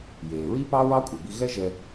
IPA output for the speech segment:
jeː˩ɹi˥pɑ˥ɹɑ˥ kʷʼe˩bi˧ ɣɛ˥ʒɛ˧

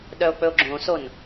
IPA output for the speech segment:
ɗœo̯k͡pɵo̯ɡ͡ǁõson

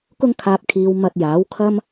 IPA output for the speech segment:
kʊ˧ŋ kʰaː˨p̚kʰiː˨˧w mɐ˨t̚jaː˨˥w kʰɐ˥m

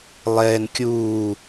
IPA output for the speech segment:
lˠɛːn kʲuː

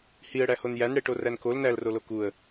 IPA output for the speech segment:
hiə̯ɽæhon jænɽeʈoræn kol nælrolo kuə̯

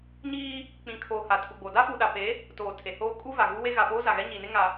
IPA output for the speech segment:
ɲiː˦ | k͡pĩ˨kʰoː˨ ha˨tʰu˨ɡ͡bo˨ da˦fu˨ɗa˨pe˨˦ | toː˨tʰe˨hoː˦ kʼu˦va˨ ɣu˦we˦ ɣa˨poː˦za˨ɣɛ˦ ɲi˨ne˦ ŋa˨

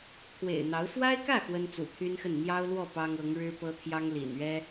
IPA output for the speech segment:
t̪ʰwḛ˨˩ɪ̯n̪ɑ˧˥ʊ̯ fwa˥ɪ̯kä˥˩ xwə˥nt͡sṵ˨˩t̪ʰy˥nxə˥˩n n̪jɑ˥ʊ̯lwɔ˥˩ pɑ˥ŋɤ˧˥ŋ ɻɻ̩˥pɤ˥ t̪ʰjɑ˥ŋlḭ˨˩nɥɛ˥

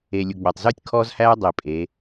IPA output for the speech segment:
eː˨lʲu˨ɡ͡bæ˨tˤ zuː˦tʲkʰɔː˦zhæː˦ dˤiː˨pʼeː˨˦

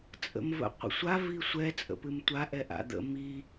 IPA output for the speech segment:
t͡sʼə̰mvə̰qʷə̰sʷa visʷɛ t͡sʼə̰pɨmtʷa ʔɛʔa̰d̪ə̰ mi

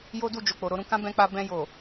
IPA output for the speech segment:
jo˦du˦˨ d͡ʒo˨k͡po˨ɾo˨˦ɾũ˧ kã˦ bɛ̃˧k͡pa˧ bɛ̃˧jo˨

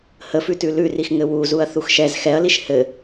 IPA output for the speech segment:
həfʉtʉ lʉrixŋɘ wuzuɐ̯θux ʃɛz xɛɐ̯liʃ hɘ

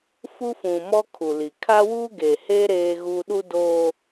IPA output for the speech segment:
fu˦fũ˨mɔ˦ kʰu˨li˨ kʰa˦wuː˦ ɡe˨heː˦ ɾeː˦ɣu˦ ɗu˦doː˦

